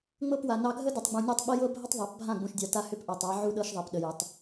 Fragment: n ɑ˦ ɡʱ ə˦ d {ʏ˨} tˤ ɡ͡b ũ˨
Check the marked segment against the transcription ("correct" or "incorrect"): correct